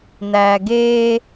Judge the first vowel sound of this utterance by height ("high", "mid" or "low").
low